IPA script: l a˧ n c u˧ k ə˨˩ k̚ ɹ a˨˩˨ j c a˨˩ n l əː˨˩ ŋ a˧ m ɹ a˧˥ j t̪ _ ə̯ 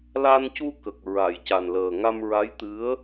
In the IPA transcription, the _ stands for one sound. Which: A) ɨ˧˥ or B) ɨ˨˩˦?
A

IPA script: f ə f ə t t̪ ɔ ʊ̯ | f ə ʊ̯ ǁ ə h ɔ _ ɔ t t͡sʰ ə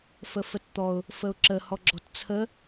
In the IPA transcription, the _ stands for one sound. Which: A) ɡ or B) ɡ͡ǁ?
B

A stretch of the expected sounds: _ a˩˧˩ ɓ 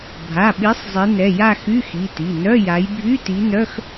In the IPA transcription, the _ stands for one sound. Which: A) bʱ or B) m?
A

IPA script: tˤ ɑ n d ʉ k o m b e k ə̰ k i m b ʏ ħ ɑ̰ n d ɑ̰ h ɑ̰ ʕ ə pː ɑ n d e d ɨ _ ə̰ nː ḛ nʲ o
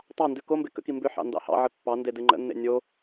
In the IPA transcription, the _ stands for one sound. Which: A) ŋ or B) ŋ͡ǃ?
B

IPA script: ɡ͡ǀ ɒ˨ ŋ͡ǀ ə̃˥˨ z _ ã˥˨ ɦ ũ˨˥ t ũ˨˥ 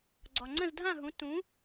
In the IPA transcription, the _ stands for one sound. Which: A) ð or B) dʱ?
B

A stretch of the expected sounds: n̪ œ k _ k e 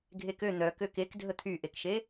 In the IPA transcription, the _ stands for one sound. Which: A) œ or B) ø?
B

